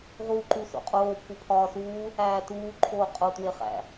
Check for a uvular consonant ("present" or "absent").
present